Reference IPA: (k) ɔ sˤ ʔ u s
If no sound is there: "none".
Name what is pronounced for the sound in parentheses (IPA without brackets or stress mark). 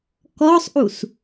k